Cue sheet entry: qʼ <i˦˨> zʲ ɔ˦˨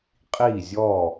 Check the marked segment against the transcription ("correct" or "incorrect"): correct